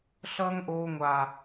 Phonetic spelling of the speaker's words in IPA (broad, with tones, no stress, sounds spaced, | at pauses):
ɬ ʌː˦ ŋ ʔ oː˦ ŋʷ a˦